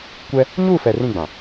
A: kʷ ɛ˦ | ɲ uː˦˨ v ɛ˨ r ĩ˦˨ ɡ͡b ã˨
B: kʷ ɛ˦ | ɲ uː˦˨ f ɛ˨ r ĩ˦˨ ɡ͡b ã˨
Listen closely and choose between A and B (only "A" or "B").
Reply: B